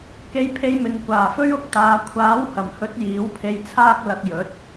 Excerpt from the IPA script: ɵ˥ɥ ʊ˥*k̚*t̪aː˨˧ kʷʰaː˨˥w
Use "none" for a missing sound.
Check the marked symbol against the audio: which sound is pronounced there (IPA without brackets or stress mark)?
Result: k̚